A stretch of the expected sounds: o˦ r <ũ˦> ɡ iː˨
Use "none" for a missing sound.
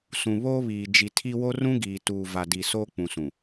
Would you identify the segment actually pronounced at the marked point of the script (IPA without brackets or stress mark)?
ũ˦